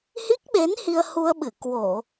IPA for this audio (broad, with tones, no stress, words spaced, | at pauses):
hi˦˥k̚ɓe˨˦n hi˧ə̯hu˧ə̯ɓɨ˧˩ kwo˧˩˨